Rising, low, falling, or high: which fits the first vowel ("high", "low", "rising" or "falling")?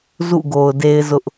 falling